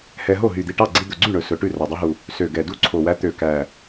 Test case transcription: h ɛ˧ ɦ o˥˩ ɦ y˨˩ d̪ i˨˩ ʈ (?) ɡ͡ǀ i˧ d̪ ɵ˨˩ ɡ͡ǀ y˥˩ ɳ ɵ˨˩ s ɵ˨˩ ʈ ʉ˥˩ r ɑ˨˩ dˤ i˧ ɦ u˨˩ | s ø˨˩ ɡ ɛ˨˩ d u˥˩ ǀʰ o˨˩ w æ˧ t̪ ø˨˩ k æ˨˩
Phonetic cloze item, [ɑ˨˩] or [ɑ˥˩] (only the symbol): ɑ˥˩